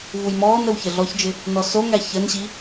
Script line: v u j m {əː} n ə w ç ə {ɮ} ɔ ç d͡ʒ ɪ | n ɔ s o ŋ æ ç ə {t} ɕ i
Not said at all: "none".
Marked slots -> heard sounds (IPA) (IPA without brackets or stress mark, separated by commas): ɔː, ɮ, n